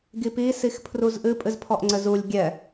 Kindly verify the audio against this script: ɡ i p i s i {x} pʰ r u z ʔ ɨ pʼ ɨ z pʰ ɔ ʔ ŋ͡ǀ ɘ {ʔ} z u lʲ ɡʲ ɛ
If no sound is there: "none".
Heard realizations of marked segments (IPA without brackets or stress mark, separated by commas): x, none